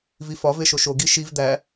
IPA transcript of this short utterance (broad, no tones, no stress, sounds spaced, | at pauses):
v i f ɒ v e ʃ o ʃ o ɡ i ʃ i v d̪ æ